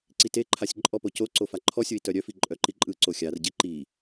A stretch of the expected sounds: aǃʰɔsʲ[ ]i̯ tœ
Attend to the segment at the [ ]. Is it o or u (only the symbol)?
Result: o